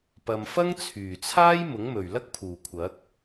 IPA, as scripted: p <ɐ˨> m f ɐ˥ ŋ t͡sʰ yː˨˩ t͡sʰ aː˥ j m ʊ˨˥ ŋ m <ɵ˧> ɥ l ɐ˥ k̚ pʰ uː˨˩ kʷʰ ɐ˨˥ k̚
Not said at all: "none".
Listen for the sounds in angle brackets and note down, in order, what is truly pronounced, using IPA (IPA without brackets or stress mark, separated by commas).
ɐ˨, ɵ˨˩